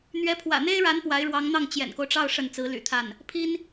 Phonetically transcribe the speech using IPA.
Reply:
n̪ɥɛ˧˥pʰwä̰˨˩n̪e˥ɪ̯ɻa˧˥n pwa˧˥ɪ̯ɻwɑ˧˥ŋn̪ɑ˥˩ŋ t͡ɕjɛ̰˨˩nko˦ʊ̯ʈ͡ʂɑ˥˧ʊ̯ ʂə˥˩nt͡sɹ̩˧˥ly̰˨˩t̪ʰa˥˩n | pʰi˥n

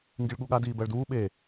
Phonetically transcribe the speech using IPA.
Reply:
ŋɡiɭɠuɠa diːbɜɭduː ɓe

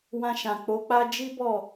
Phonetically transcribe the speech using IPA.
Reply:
wã˧ʃã˨k͡po˨˦k͡pa˦ d͡ʒi˦bɔ˦˨

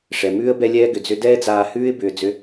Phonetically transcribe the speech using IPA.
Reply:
ʂɛ˨mʉː˦ə̯ bɛ˧lʲɛː˧ɡʏ˨ d͡zʏ˧dɛː˦d͡zaː˧hʉː˦ɪ̯ bʏː˨ d͡zʏ˦

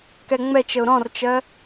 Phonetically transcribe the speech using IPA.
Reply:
kɛŋ͡mɛt͡ʃəʊ̯ ɾɔ̃rt͡ʃɜ

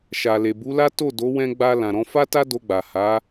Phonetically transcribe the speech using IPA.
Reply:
ʃa˨le˨bu˨˦la˦ to˦˨do˨˦wɛ̃˧ ɡ͡ba˧ lã˨ɾɔ̃˧fa˦ta˦ do˧ɡ͡ba˨ha˨˦

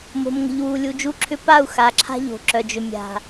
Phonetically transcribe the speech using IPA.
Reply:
mo̤˨mŋə̤˨ʎwu˨lʲu˨ d͡ʒu˦ǁʰʏ˦ pa˦˨u̯ xa˨ǁʰa̤˦ ʎo̤˨ǁœ˨d͡ʒʏ˨ mʲa̤˨

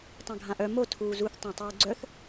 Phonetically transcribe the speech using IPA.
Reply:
tˤãɡʱãʔœ mo tʰuːzuθ tˤãtˤuːɡ͡ǀœθ

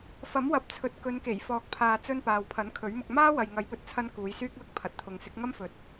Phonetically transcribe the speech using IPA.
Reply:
fɐ˨˥mwɐ˨p̚t͡sʰɵ˨t̚ kɵ˨˧nke˨˩j fɔː˨k̚pʰaː˨t͡sɵ˧n paː˨wpʰɐ˨˥nkʰɵ˨˥ɥmʊ˧k̚ maː˥ wɐ˨jŋɐ˨˧jpɵ˧t̚t͡sʰɐ˧n kuː˨˧jsyː˥k̚lʊ˥k̚ pʰɐ˨t̚t̪ʰʊ˨˧ŋ sɪ˨˥k̚ŋɐ˥mfɵ˨˥t̚

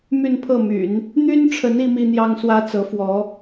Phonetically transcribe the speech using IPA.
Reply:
my˥˧npʰɤ˥˩my̰˨˩˦n | n̪y˥nʈ͡ʂʰə˧˥n i˧˥mi˥n̪jɑ˥ŋ swä˥t͡sɤ˧˥fwɔ˧˥

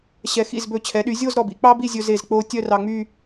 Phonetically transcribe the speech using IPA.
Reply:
ɕɛ˩˧xḭ˧˩zbɵ˧˩ t͡ɕʰɛ˩˧ɗy˩˧zʲo˥˧z ɾɔ˧˩bḭ˩˧ k͡pɑ˥bi˥˧zʲɵ˧ze˧˩z k͡po˧ tʲœ˥˧rɑ˧ŋ͡my˥˧

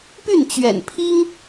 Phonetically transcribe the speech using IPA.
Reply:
py˥˩nt͡ɕɥɛ̰˨˩npʰi˥ŋ

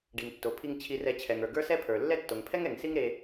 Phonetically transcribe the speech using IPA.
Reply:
ɖi˩ŋtːo˩pʰi˧ŋ t͡ɕʰi˧rɛ˧ t͡ɕʰɛ˩ŋə˞˩ ɡə˞˥ sɛ˥pʰə˞˩ lːɛ˥ tːo˩ŋpʰɛ˥ŋɛ˩ŋ si˥ŋ ɾe˧

